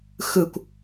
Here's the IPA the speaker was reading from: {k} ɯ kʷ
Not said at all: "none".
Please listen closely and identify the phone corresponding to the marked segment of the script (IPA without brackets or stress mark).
x